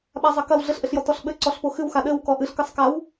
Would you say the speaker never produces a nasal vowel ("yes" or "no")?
yes